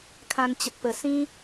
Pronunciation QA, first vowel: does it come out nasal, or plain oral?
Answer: nasal